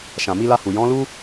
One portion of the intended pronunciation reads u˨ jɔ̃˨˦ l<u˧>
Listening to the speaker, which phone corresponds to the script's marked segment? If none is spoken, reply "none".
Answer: u˦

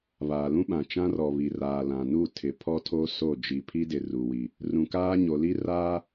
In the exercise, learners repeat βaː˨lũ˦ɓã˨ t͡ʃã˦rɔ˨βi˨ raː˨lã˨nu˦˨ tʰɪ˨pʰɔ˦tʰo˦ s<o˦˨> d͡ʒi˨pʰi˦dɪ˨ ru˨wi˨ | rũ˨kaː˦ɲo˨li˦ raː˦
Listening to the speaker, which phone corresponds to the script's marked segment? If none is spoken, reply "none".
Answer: o˦˨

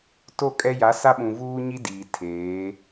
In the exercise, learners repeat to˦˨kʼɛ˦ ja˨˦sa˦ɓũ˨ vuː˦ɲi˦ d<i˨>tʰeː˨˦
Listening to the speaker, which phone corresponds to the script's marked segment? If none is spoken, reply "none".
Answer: iː˨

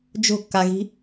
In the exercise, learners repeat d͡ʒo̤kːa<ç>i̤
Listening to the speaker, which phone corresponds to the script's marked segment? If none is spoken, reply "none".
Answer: ɣ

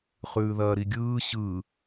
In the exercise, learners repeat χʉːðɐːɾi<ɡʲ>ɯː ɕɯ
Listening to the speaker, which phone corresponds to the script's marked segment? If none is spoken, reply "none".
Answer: ɡʲ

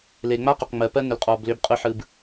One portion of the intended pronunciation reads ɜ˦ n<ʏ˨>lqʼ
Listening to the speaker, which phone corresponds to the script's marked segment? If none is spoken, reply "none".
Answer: ʏ˨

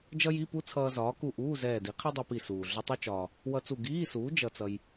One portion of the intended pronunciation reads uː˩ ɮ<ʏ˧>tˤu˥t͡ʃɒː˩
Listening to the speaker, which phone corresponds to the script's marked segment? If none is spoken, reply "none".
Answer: ʏ˧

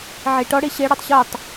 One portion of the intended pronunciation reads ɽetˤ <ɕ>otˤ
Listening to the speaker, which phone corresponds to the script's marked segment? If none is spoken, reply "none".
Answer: ɕ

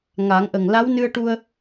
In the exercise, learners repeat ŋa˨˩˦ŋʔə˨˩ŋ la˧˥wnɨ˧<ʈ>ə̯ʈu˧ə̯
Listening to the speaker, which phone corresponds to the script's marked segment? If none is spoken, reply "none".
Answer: none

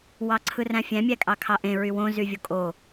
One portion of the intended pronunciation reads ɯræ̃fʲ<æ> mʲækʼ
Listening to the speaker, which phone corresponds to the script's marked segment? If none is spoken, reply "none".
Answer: æ̃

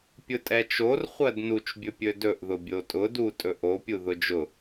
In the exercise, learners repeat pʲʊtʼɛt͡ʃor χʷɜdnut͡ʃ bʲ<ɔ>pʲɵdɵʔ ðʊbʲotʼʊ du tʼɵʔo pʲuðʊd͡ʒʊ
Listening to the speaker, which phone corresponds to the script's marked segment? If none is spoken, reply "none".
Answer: ɵ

